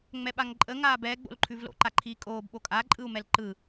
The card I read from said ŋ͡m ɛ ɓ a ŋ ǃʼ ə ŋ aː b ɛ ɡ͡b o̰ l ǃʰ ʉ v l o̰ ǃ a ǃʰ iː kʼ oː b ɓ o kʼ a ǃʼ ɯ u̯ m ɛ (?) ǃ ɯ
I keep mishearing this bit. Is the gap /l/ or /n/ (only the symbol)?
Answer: l